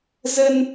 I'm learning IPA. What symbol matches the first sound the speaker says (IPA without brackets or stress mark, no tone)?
z